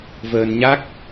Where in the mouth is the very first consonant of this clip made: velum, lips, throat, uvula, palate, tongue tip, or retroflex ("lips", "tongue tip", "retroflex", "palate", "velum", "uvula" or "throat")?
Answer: lips